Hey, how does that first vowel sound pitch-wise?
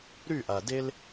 falling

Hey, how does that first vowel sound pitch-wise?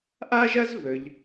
high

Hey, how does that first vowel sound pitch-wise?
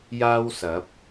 high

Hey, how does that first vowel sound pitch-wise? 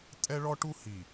high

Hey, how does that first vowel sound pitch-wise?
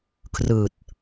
low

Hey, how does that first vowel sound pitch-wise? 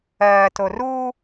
low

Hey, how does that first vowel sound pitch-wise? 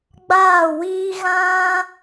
falling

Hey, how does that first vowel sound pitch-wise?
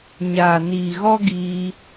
low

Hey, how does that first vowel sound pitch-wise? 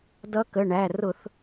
rising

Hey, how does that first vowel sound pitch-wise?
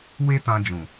high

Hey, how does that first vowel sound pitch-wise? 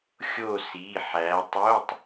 falling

